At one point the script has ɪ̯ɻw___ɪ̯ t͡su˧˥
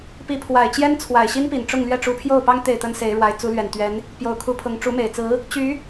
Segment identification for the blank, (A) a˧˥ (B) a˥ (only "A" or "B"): A